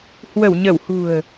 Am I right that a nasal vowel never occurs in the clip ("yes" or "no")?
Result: yes